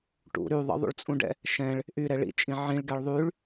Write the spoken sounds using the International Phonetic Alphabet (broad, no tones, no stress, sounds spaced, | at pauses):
ʈ ṵ ɾ y ðˤ ə̰ ðˤ ṵ ɭ t͡sʼ ũ ɖ ɛ̰ | ʃ ɛ̃ ɭ | ʔ y ɾ ɛ ɭ ḭ t͡ʃʼ ĩ ʕ ĩ ɭ ɡ ɛ ɭ ðˤ y ɭ